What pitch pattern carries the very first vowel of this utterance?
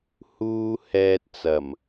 high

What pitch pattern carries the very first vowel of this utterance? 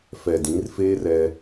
low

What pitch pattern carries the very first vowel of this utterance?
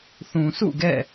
low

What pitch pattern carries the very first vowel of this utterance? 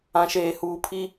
low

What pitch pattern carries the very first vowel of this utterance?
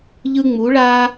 high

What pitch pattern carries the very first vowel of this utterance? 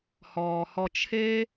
low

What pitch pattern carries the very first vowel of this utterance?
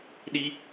high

